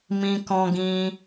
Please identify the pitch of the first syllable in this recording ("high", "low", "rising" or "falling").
high